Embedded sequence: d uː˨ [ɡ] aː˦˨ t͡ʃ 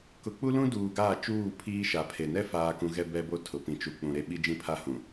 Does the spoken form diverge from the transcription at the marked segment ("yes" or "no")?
no